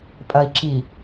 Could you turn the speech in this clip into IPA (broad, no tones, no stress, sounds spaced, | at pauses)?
pʼ ɐ i̯ ǁ i